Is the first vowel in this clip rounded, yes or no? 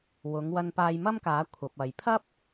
yes